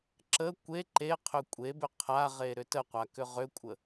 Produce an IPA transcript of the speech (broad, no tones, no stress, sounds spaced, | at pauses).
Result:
ǁ ə kʷ e ǃ e qʰ ʏ kʷʼ e b ʏ qʰ a ʁ e ɾ ʏ t ə qʷ a k ʏ ʁ ʏ kʷʼ ə